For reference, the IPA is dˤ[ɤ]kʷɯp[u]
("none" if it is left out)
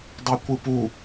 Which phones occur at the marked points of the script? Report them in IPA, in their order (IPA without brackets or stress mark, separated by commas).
ɤ, u